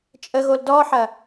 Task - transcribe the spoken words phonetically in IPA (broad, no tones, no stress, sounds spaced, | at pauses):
t͡ʃʼ ə ɣ o l d ɔ ħ ɐ